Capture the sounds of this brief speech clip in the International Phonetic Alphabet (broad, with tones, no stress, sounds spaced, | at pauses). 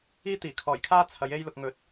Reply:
iː˥ t̪ iː˨˩ kʰ ɔː˨˩ j kʰ aː˥ t͡sʰ ɐ˨˥ j e˥ j l ʊ˧ k̚ ŋ ɵ˨˥ t̚